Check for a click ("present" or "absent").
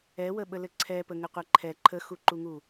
present